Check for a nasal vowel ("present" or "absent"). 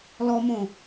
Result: present